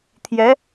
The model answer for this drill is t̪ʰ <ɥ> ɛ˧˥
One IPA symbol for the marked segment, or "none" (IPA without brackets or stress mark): j